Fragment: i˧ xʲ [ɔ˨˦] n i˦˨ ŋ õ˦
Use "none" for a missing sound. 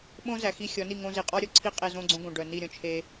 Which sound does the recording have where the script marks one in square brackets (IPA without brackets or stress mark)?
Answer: ɔ˨˦